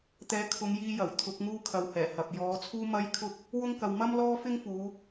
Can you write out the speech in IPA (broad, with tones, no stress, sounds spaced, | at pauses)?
t̪ ɛː˨˥ kʰ ʊ˨˧ ŋ j iː˧ j ɐ˨˩ w t̪ʰ ʊ˨˥ k̚ ŋ uː˥ kʰ ɐ˨ w h ɛː˨˩ h ɐ˨ p̚ j ɔː˨˧ t͡sʰ uː˥ m ɐ˥ j kʰ ʊ˥ k̚ | w ʊ˥ ŋ k ɐ˨ w m ɐ˥ m l ɔː˥ f ɪ˥ ŋ f uː˨˧